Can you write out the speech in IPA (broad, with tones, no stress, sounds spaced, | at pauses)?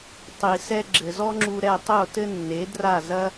tˤ i˨ s ɛ˧ ɡ͡ǁ ɘ˨ z ɔ˦ ŋ͡ǁ u˧ ɾ ɛ˧ tˤ o˦˨ t ɘ˦ nː e˨˦ d r a˦˨ z ɐ˦